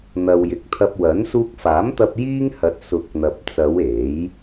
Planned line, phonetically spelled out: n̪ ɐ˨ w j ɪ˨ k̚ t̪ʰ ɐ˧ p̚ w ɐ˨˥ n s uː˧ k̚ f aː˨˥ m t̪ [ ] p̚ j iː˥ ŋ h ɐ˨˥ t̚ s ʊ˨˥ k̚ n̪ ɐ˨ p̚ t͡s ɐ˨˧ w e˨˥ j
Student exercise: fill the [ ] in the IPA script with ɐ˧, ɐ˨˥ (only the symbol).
ɐ˧